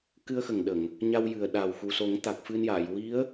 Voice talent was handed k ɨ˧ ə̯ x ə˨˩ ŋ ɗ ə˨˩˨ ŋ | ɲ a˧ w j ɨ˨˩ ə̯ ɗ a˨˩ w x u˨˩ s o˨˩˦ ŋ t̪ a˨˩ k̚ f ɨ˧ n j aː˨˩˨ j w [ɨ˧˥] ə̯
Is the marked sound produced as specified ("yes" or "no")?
no